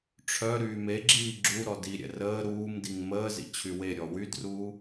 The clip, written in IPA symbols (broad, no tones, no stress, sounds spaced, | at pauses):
ʈ͡ʂʰ œ ɾ yː m e ɡ͡ǁ iː ɡ͡ǁ u ɾ ɔ d i ɾʲ ɛ̰ r əː ɾ uː m d i ŋ m əː z ḭ t͡ɕʰ y w e ɾʲ ɔ w y d r uː